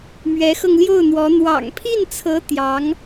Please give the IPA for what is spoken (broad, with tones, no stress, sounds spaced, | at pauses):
m ɥ ɛ˧˥ x ɤ˧ ŋ l j o˥˩ ʊ̯ n̪ w ɔ˧˥ n̪ w ɑ̰˨˩ ŋ pʰ i˥˩ n t͡sʰ ɤ˧˥ t̪ j ɑ˧˥ ŋ